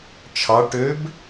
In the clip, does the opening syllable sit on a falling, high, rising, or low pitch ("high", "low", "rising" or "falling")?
rising